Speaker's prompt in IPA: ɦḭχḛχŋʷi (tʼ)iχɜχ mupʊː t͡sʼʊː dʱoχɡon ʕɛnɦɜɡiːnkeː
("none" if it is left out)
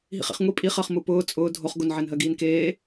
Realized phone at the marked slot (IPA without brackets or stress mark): pʼ